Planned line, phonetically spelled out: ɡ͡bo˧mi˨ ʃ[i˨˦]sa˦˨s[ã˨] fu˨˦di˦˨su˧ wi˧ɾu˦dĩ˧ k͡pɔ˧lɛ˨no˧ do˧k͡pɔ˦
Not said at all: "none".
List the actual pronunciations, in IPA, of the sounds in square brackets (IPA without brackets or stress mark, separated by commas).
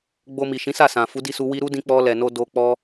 ĩ˨˦, ã˨